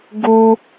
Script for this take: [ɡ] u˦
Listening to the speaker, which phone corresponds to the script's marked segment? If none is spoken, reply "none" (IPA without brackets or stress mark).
ɡ